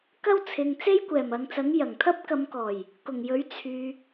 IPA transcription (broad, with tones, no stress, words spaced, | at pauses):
kɐ˥wt͡sʰɪ˨ŋ t͡se˥jkʷɛː˨˩mɐ˨ŋt͡sɐ˨˥ŋ jɐ˨˩ŋt̪ʰɐ˥p̚ kɐ˨˧mkɔː˨˩j | kʊ˨˩ŋjɵ˨˥ɥ t͡sʰyː˨